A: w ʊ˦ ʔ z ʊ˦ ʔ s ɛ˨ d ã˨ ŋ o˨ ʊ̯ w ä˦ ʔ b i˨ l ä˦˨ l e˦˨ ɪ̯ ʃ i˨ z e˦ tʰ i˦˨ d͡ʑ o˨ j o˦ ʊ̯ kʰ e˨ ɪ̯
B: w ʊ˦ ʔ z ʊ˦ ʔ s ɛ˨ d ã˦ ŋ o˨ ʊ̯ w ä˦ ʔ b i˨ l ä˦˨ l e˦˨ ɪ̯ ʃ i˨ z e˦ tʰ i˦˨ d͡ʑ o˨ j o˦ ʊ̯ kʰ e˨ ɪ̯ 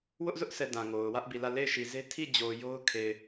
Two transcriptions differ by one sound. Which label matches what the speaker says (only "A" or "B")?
A